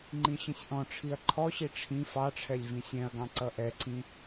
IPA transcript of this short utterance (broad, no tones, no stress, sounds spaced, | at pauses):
ŋ͡ǃ ĩ ɕ ĩ sʲ ʔ ɔ̃ ʈ͡ʂʰ i ɐ̯ ǃʰ ɔ ɕ i ʈ͡ʂʰ ĩ f ɑ ʈ͡ʂʰ ɛ lʲ v ĩ sʲ ɛ̃ ɐ̯ ɡ ɑ̃ ǀ ʌ ʔ ɛ ǀ ĩ